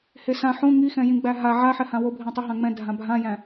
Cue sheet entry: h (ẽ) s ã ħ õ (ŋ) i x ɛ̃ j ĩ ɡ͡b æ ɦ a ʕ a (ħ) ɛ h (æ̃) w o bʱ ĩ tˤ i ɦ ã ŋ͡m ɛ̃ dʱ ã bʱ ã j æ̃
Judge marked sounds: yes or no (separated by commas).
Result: no, yes, yes, no